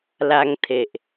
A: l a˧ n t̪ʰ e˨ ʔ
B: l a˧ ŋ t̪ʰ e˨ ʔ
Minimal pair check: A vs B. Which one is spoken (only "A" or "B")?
B